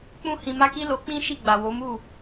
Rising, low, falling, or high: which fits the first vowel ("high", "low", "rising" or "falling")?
high